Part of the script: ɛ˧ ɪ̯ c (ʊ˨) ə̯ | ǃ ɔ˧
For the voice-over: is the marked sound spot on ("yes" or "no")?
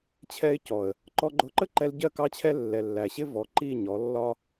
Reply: no